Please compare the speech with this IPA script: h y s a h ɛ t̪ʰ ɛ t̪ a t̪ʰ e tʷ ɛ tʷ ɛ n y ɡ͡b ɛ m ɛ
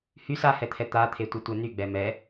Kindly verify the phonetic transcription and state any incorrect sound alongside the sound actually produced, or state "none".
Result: none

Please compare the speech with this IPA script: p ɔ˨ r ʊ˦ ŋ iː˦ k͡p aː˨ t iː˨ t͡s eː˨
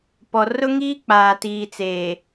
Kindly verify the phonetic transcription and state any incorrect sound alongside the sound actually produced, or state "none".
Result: none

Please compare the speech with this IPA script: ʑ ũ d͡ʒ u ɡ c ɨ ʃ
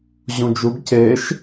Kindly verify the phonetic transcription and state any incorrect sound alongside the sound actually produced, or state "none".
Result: ɨ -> e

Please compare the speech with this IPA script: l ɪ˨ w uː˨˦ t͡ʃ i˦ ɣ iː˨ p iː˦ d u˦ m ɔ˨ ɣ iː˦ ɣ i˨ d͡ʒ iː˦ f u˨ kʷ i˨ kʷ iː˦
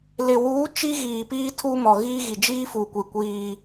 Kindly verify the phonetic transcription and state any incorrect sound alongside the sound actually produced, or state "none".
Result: d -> tʰ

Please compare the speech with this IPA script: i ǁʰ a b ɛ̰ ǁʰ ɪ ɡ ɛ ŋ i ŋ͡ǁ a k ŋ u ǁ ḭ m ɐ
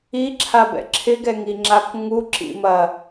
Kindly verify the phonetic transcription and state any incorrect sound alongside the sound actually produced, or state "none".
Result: none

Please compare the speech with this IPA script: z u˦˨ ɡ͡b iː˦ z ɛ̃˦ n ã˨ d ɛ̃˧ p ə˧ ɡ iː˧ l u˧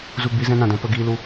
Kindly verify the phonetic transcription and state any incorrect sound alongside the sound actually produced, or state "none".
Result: none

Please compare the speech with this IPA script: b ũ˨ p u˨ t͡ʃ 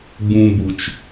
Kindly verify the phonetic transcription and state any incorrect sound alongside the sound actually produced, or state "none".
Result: p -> b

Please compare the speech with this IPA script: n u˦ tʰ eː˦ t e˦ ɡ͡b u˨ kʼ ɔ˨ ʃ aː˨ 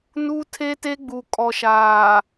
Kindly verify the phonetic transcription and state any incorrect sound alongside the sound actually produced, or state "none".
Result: eː˦ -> e˦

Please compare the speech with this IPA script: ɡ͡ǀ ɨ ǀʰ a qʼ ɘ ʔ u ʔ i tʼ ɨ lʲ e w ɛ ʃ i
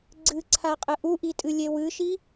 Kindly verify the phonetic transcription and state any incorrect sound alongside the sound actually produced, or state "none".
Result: ɛ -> ɨ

